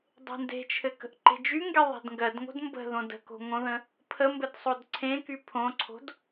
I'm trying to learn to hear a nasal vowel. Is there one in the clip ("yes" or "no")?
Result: yes